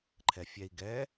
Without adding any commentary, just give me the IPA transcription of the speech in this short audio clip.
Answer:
ǃʰɛfʲɛi̯ ɡɛ

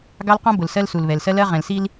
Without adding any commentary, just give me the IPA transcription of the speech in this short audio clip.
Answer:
ɡɑ˦lqɔ̃˦ bʊ˨lsɜ˦lsu˨l βɛ˨lsɜ˦lɜ˦ ʁɛ̃˨l si˦l

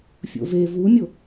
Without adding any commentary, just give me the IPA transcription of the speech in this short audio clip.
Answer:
fʲo̰ve vumʲo

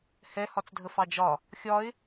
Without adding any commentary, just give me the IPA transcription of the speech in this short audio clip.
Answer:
hɛ hɒt͡sdʱəfɑd͡ʒɒ | xʲɒɪ̯

